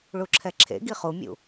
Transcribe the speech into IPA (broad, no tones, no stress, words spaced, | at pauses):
ɭuǁʰɛǁʰḛɡi χumʲṵ